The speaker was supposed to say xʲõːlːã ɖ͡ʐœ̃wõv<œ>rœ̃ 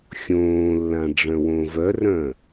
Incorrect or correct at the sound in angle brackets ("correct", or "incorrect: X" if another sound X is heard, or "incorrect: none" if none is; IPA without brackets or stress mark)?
correct